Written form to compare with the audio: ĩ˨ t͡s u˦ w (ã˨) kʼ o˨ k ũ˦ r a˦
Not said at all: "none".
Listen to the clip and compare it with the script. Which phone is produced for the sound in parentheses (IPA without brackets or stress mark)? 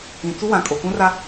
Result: ã˨